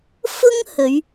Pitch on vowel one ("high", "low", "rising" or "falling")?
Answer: high